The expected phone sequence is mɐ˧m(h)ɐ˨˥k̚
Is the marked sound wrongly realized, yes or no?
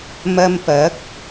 yes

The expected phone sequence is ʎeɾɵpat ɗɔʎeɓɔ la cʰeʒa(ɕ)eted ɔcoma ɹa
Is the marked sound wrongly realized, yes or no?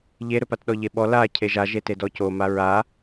yes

